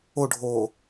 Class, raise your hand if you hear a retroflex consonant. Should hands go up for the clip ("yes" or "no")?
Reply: yes